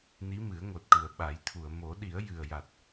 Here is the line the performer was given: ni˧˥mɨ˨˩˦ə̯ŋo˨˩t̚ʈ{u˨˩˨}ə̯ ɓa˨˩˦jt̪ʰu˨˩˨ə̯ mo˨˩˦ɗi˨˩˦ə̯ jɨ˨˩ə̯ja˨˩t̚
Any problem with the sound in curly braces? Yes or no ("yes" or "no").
yes